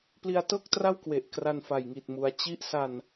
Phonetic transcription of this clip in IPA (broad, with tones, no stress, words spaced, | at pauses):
pli˦˥a̯tɤː˥˩k̚tra˥˩wkwe˨˩ʔ kra˧nfa˨˩jŋi˨˩t̚mu˩˦a̯ t͡ɕi˦˥ʔsa˧n